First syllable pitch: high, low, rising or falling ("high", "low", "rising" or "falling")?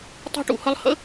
high